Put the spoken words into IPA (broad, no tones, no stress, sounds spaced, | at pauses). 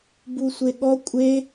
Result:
b u sʷ e ɠ ɔ kʷʼ e